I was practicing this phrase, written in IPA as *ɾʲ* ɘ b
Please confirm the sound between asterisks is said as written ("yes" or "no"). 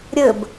yes